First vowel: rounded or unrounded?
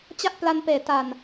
unrounded